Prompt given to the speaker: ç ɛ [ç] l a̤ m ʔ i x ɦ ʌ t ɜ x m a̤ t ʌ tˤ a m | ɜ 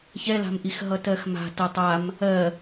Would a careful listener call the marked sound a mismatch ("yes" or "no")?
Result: yes